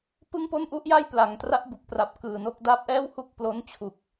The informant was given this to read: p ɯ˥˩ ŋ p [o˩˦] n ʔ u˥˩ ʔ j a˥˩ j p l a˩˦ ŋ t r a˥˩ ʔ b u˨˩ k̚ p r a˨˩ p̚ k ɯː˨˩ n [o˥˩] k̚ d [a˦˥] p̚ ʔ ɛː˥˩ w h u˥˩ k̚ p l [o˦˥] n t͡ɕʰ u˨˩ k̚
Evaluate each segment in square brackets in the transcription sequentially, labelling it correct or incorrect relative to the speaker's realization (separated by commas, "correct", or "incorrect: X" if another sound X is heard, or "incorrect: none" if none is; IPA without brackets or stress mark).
incorrect: o˥˩, correct, correct, correct